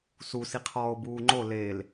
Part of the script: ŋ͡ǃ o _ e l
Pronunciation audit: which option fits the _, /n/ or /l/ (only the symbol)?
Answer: l